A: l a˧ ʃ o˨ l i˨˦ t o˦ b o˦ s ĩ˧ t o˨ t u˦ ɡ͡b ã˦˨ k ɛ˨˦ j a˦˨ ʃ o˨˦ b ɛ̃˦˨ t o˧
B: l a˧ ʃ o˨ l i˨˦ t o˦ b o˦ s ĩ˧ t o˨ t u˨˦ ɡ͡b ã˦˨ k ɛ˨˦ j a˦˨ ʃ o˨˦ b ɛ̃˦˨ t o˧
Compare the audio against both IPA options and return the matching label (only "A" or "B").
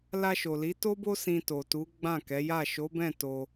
B